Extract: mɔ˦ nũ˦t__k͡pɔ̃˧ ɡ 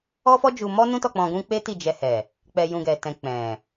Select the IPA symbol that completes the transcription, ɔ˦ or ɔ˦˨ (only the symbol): ɔ˦˨